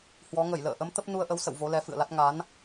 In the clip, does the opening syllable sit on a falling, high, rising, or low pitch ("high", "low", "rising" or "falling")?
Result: rising